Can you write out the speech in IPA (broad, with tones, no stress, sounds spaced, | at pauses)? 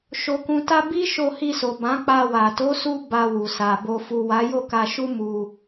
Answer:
ʃ o˨ k ũ˨ t a˧ b i˦ ʃ o˧ h i˧ s o˨ b ã˨˦ k͡p a˧ w a˨ t o˨˦ s u˧ b a˧ w u˨ s a˨ b o˨ f u˨ w a˨˦ j o˦˨ k a˧ ʃ u˦ m u˧